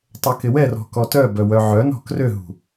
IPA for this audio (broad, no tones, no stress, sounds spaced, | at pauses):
tˤ ɛ k ɪ w ɛ r ɔ̤ k ɔ t œ b œ w œ ʕ œ n ɔ̤ k r ø ɦ ṳ